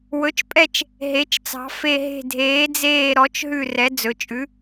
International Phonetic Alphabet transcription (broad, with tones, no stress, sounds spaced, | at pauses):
w ɵ˩˥ t͡ʃ pʼ ɛ˦˨ t͡ʃ | ɦ e˩˧ t͡ʃ t͡s ɑ̤˩˧ f e˦˨ ɦ e̤˦˨ dʱ eː˩˥ d͡z eː˦˨ ɾ ɔ˩˥ t͡ʃ ɦ ʉ˦˨ r ɛ˩˥ d͡z ɵ˩˧ t͡ʃʼ ʉ˩˥